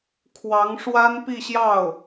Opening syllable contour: rising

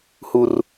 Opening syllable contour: high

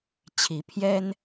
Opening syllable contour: rising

